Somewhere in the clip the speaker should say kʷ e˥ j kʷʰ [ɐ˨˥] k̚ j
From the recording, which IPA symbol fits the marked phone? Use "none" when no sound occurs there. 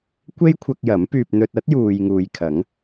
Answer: ɐ˧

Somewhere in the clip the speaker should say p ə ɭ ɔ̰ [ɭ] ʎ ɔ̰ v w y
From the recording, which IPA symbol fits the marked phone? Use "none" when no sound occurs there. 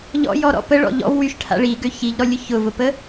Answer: none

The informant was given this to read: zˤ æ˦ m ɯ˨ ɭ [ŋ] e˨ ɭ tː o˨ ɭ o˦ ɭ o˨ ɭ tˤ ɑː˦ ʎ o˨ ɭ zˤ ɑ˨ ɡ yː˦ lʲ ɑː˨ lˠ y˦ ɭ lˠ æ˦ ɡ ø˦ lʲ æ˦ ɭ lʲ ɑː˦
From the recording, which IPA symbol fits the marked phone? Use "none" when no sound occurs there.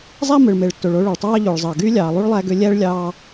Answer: m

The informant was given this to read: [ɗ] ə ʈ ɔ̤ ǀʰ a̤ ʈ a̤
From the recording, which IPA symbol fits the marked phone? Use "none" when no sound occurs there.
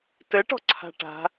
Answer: t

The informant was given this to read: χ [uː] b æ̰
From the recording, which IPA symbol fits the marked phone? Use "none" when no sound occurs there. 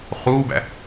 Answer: uː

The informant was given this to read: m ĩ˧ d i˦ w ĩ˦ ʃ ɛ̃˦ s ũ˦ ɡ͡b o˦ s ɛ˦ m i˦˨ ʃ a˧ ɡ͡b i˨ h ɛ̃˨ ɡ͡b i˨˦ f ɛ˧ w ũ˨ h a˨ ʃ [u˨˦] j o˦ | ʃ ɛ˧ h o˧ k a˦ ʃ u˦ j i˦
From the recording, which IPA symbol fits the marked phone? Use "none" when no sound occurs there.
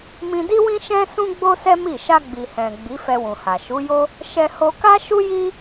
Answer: u˨˦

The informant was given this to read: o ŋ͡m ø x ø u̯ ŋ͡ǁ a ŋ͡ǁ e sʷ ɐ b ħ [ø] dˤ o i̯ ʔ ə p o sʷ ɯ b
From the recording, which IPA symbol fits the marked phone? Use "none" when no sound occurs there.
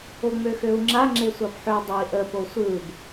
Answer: ø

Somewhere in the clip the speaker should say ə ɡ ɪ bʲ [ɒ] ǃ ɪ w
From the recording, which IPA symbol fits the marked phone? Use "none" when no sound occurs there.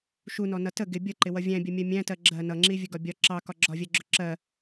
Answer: ʌ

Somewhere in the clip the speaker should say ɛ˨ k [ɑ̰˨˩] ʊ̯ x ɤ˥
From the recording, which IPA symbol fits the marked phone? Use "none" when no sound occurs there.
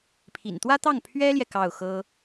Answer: ɑ˥˩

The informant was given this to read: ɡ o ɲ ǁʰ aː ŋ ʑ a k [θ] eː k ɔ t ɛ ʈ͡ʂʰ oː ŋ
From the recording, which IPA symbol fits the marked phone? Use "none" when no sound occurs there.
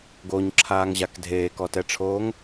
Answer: dʱ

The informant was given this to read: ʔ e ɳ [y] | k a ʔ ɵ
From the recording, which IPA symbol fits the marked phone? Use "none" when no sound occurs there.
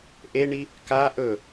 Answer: i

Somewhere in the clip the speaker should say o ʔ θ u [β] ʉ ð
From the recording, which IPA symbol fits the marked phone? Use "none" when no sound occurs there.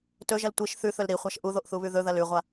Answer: β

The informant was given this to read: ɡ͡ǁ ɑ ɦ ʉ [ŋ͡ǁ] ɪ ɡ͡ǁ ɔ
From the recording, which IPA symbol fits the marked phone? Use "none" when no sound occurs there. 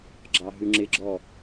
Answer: ŋ͡ǁ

